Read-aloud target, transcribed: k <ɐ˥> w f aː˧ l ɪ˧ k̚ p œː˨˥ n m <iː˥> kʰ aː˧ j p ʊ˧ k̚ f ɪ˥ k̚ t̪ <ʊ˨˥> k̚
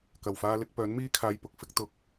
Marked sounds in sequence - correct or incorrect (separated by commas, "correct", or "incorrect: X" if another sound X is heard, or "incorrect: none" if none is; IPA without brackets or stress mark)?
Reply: incorrect: ɐ˨˩, correct, incorrect: ʊ˧